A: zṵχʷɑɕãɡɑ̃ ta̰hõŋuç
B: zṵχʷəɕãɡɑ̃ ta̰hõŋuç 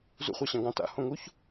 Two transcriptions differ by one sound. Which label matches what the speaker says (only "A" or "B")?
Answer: A